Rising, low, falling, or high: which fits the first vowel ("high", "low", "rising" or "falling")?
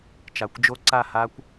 low